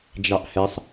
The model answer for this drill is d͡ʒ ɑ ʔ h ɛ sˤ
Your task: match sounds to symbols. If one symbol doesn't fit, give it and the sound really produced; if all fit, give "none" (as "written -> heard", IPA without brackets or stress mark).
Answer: none